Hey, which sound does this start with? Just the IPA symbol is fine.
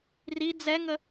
r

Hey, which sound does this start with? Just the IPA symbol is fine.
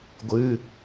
ɡʷ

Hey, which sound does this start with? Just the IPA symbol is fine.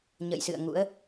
ɲ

